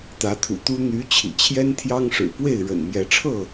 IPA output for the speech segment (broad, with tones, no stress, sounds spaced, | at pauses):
t̪ ä˨˦ t̪ʰ ṵ˨˩ t̪ u˦ n̪ y˨˦ t͡ɕʰ ḭ˨˩ t͡ɕʰ j ɛ˦ n t̪ʰ j ɑ˦ ŋ ʂ ɻ̩˨˩ p w e˥˨ ɪ̯ ɻ ə̰˨˩ n m j ɛ˨˦ ʈ͡ʂʰ ɤ˥˨